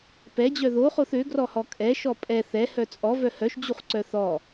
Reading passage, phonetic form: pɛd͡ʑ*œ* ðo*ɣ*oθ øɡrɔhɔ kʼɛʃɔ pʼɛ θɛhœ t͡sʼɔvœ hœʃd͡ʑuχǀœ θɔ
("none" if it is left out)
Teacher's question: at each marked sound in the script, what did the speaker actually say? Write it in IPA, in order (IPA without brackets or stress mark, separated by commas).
œ, χ